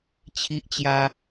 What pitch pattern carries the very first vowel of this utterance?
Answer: high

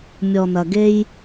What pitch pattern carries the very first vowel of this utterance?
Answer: low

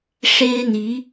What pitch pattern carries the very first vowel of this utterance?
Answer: high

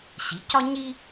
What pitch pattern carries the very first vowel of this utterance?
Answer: rising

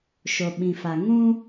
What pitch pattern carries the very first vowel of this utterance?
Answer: low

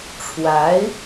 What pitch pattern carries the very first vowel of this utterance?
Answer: rising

